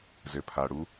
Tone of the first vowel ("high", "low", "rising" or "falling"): low